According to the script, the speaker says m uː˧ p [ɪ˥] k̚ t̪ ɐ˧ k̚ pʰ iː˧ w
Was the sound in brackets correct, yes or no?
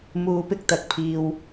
yes